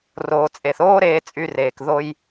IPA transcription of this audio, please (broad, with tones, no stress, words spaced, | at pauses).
roː˩t͡sʼe˩θoː˥ ɾeː˧t͡sʼy˧reː˩k ðo˧j